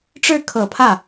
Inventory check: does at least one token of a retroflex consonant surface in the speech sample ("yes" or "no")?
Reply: yes